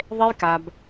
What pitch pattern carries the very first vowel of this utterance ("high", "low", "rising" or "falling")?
high